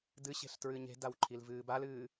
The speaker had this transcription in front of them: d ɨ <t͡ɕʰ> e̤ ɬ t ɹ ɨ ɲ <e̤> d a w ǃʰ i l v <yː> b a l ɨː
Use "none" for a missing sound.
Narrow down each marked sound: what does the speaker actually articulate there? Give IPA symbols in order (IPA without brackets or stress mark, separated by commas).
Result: ɕ, e̤, ɨː